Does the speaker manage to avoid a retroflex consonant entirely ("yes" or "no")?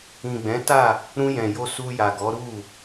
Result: yes